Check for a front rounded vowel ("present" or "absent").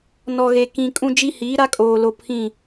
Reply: absent